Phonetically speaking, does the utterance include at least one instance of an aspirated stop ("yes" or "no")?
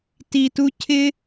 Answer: yes